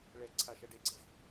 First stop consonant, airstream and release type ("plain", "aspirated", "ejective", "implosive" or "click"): click